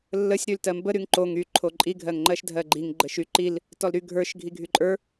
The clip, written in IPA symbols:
lː ə sʲ ɾ y l t ɜ m b ə ɾ y ŋ ǃ o ŋ y ǃʰ o ǃʼ i ɡʱ ɜ ŋ ŋ͡ǃ ɜ ʃ dʱ ɜ ɡ͡ǃ i ŋ ɡ͡ǃ ə ʃ y ǃ i l | t ɔ l ɾ y ɡʱ ə˞ ʃ ɡʱ i ɡʱ y ǃʼ ə˞

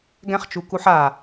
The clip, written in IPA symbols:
ɡ ɛ̃ χ t͡ʃ u k u ħ a

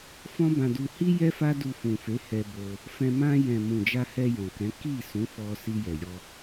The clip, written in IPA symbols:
f ɔ̃˦ b ã˧ d u˧ h i˦ j ɛ˦ f a˦ d u˧ f ũ˨ f e˨˦ h ɛ˧ b o˧ | f ɛ̃˧ m ã˧ j ɛ̃˨ m ũ˨ d͡ʒ a˧ h ɛ˧ j ɔ̃˨ k ɛ̃˨˦ k i˦˨ s ũ˨˦ f ɔ˧ s i˧ j ɛ˨ j ɔ˧

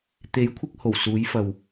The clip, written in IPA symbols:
t̪ e˨˥ j kʷʰ ɪ˧ k̚ h o˨˩ w s uː˨˥ j f ɐ˨ w

